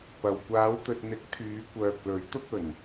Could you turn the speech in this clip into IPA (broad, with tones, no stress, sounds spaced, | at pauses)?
p ɐ˨ w kʷ aː˨˧ w t̪ ɵ˨ t̚ n̪ ɪ˨˥ k̚ t̪ʰ yː˨˧ kʷ œː˨ k̚ l ɵ˨˥ ɥ t̪ ʊ˥ k̚ ɵ˨˩ n